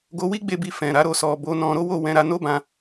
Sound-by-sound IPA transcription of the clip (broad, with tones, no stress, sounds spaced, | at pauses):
ɡ o˧ w i˦ ɡ͡b e˦˨ b i˧ f ɛ̃˨ ɾ a˨˦ ɾ o˦˨ s ɔ˨ b o˨˦ n ɔ̃˧ ɾ o˦ w o˦˨ w ɛ̃˧ ɾ a˧ n o˦ b ã˧